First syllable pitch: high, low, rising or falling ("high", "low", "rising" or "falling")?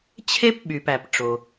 high